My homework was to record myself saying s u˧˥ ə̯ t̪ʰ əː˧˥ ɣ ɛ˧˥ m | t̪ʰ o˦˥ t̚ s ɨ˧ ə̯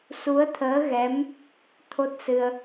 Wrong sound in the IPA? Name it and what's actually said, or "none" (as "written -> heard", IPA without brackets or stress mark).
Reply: none